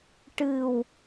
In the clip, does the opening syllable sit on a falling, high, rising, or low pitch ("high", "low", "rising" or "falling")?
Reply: low